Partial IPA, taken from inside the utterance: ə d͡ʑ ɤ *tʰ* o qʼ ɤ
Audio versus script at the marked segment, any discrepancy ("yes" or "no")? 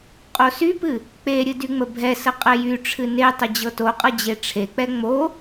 yes